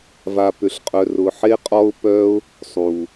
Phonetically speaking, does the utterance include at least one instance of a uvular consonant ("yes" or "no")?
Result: yes